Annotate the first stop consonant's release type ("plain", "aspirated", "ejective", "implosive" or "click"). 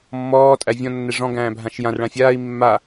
ejective